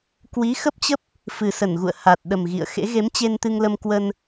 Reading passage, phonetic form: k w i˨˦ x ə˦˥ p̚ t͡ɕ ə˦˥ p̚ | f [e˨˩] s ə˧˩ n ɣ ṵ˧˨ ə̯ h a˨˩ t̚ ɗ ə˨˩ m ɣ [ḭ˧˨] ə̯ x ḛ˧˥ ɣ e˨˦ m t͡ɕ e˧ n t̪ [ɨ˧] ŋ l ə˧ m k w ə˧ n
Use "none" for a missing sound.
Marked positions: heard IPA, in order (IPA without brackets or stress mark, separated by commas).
ɨ˨˩, ḭ˧˨, ɨ˧